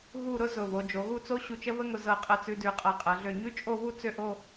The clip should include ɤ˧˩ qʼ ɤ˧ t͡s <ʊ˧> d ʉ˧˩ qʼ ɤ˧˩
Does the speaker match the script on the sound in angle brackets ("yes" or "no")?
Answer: no